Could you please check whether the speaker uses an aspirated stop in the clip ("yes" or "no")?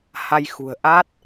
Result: no